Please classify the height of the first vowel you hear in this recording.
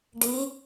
high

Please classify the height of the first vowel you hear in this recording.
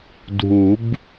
high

